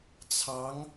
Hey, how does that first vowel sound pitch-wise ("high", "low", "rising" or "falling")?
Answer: rising